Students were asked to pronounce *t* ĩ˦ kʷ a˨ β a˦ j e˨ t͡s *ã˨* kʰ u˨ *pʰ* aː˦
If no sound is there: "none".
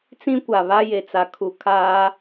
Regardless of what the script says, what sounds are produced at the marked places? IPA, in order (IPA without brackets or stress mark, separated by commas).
t͡s, a˨, kʰ